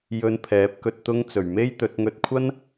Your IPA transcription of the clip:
j ɵ˧ n pʰ ɛː˨˥ p̚ k ɵ˧ t̚ t̪ ʊ˥ ŋ t͡s ɵ˨˩ ɥ m e˥ j t̪ ɵ˨˥ t̚ ŋ ɵ˧ t̚ kʷʰ ɐ˥ n

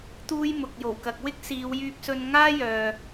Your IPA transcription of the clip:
t̪ uː˥ j m ʊ˨ k̚ j o˨˩ w k ɐ˨ k̚ w ɪ˥ k̚ s iː˨˧ w j yː˧ p̚ s ɵ˧ n ŋ aː˥ j œː˨

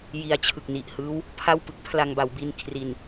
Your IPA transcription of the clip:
j i˧ a̯ t͡ɕʰ ɯ˨˩ k̚ n i˨˩ ʔ h ɯː˦˥ w | pʰ a˥˩ w p ɯ˦˥ k̚ pʰ l a˧ ŋ b a˩˦ w b i˧ n kʰ r i˨˩ n

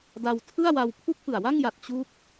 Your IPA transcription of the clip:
d a˧ w tʰ ɯ˥˩ a̯ w a˧ w pʰ u˥˩ k̚ p ɯ˨˩ a̯ w a˥˩ ŋ j a˨˩ t̚ t͡ɕ u˦˥ k̚

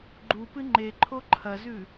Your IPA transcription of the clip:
ɡ͡ǃ u p ɨ ŋ͡ǃ e ǃʰ o ǃʰ ɐ z ʉ

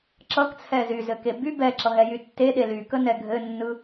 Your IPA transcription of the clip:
ǁ ʌ k t͡sʰ ɛ z y z ɘ k e b y b ɛ ǁ ʌ ɦ ɛ j y tː e ɗ e l y k ə n ɛ ɡʱ ɘ nː ɯ

